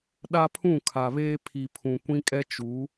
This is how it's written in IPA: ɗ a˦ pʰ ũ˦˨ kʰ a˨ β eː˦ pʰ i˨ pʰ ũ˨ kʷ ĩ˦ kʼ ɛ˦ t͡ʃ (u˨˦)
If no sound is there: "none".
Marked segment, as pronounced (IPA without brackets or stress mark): u˨˦